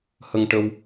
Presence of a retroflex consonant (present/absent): present